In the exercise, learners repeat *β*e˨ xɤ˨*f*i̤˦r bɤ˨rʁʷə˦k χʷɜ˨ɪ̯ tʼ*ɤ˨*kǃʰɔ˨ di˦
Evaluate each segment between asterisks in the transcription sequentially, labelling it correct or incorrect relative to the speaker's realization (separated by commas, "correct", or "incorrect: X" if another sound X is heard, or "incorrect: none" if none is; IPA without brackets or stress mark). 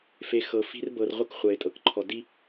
incorrect: f, correct, correct